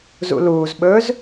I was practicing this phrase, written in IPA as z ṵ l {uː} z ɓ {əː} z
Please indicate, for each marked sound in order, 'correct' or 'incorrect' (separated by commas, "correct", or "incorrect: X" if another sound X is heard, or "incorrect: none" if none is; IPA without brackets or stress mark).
correct, incorrect: ɵː